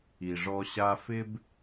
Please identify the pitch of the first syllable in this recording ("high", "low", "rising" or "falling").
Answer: low